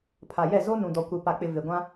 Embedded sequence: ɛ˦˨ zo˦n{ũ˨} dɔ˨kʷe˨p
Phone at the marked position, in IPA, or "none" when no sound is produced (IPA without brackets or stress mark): ũ˨